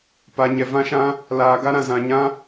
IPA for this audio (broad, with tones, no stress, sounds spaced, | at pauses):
p a˧ ɲ ɛ˧ v ã˦ ʃ ã˦ | l aː˧ ɡ a˦ ɾ ã˧ z ã˧ ɲ ã˦